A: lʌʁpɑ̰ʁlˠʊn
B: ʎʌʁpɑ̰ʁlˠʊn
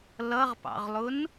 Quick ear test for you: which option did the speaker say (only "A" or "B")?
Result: A